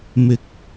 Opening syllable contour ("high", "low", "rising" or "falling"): high